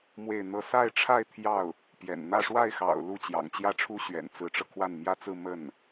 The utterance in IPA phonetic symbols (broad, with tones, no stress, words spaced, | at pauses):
mwe˥˧ɪ̯n̪ɤ˥˧ sa˥˧ɪ̯ʈ͡ʂʰa˥˧ɪ̯ t̪ʰjɑ˥˩ʊ̯ | pjɛ̰˨˩nn̪ä˥˧ ʂwa˥˩ɪ̯xɑ̰˨˩ʊ̯ lu˥˩t͡ɕjɑ̰˨˩ŋt͡ɕjä˥˩ʈ͡ʂʰu˥ ɕɥɛ̰˨˩nt͡sɹ̩˧˥ʈ͡ʂɤ˧ kʰwa˥˩nmjä˥t͡sɹ̩˥˧ mə˥˩n